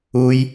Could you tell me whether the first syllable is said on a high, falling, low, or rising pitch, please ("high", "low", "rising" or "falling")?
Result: high